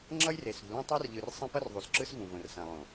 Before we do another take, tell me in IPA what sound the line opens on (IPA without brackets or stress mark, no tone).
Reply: ŋ͡ǁ